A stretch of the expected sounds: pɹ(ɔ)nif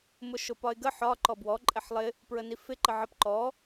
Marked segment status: incorrect: ə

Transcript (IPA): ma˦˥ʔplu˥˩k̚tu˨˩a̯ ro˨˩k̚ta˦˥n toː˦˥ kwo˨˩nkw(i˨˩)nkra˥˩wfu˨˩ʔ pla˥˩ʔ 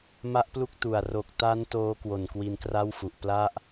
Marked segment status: incorrect: i˧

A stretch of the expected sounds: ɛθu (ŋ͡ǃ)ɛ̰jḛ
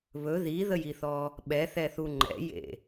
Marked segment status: correct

